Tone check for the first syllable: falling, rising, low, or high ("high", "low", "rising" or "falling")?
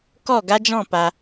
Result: falling